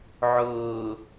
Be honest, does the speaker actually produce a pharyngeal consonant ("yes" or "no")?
yes